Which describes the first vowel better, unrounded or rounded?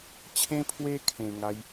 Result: unrounded